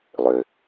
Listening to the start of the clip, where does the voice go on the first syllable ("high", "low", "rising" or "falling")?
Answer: low